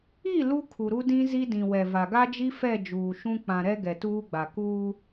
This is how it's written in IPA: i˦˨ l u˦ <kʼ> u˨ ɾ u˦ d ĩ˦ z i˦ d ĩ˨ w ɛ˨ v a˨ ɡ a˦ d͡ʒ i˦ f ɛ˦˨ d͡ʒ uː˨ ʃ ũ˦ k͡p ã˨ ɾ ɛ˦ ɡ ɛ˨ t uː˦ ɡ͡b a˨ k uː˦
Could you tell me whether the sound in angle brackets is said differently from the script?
yes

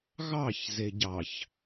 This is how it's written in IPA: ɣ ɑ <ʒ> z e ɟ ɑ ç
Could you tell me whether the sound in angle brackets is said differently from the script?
yes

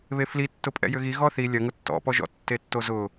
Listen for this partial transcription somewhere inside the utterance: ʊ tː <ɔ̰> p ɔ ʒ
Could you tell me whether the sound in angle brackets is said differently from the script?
no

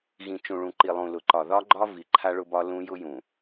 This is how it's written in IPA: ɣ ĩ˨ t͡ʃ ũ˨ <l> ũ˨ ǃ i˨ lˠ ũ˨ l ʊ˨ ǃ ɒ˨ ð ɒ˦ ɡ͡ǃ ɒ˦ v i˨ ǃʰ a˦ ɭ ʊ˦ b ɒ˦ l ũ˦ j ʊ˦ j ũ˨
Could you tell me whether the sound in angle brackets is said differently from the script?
yes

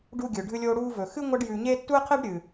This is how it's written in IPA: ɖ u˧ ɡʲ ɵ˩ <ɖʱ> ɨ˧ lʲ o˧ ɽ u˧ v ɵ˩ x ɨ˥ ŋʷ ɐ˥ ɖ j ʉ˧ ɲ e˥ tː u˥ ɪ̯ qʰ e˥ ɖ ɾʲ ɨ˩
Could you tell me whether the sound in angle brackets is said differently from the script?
no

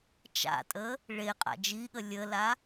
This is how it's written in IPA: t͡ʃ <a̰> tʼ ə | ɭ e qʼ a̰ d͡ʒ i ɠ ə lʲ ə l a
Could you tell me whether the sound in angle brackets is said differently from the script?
no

